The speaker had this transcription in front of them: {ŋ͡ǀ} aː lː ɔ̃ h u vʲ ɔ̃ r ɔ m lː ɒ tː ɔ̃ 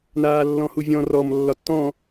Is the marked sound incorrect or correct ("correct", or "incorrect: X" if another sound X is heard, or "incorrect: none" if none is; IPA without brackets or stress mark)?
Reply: incorrect: n